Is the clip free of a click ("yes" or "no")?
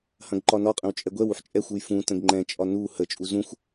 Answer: no